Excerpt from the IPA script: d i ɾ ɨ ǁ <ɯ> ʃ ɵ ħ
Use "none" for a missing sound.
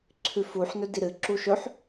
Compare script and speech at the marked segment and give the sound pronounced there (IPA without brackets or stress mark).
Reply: u